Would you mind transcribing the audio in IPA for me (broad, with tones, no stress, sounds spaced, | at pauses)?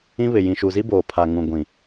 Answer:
ĩ˦ β ɪ˨ j ĩ˨ ʃ u˨ z i˦ b oː˨ pʰ a˨ ŋ ũ˨ ɡʷ ĩ˨